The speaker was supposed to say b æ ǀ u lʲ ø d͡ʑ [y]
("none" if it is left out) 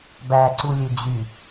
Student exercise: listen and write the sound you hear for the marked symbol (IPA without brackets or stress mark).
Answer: y